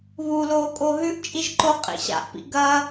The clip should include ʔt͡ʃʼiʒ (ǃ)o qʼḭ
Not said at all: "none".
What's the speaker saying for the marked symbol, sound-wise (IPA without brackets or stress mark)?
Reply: ǃ